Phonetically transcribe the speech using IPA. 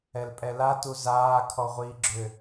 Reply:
ɛlpʼɛla tuzaː kʰɔʁʷiːɡ͡ǁʏ

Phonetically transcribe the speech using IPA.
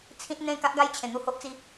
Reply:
t͡sʰĩ˦t̚n̪ẽ˥˧ ka˦ʔɡa˥˧jt͡ɕʰẽ˨˩ n̪u˥˧ho˦ʔt͡si˦

